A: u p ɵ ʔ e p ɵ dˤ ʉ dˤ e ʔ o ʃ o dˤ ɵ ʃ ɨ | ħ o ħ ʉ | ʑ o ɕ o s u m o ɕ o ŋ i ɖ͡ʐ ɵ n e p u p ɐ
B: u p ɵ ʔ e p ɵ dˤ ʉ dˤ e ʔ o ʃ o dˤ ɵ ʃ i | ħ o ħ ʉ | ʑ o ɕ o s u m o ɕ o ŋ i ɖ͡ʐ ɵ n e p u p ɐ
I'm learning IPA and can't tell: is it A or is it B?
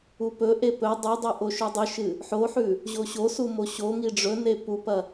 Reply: A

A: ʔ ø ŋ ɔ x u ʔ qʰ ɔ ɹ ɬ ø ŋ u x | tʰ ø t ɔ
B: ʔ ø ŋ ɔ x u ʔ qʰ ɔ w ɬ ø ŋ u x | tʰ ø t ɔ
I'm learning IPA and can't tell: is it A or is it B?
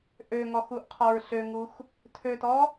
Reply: A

